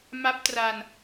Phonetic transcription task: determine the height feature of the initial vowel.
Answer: low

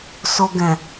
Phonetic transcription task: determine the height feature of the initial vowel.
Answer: mid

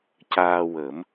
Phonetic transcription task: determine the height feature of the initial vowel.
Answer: low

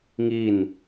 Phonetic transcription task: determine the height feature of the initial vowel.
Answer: high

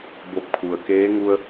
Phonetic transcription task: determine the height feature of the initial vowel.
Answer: mid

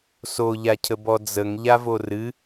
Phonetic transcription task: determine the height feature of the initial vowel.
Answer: mid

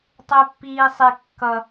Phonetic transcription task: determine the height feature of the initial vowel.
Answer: high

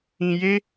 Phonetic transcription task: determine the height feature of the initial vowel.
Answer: high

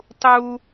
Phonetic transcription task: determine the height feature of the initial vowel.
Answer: high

